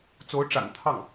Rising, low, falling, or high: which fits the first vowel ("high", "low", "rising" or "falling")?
rising